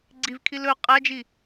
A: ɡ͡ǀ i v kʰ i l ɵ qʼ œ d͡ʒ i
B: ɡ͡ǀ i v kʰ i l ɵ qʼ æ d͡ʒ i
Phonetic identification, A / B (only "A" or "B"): B